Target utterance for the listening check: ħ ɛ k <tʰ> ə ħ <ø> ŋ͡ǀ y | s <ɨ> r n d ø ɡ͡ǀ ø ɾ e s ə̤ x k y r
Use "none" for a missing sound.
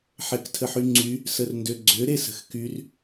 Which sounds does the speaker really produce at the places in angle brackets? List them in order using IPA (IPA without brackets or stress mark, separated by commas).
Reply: tʰ, y, ə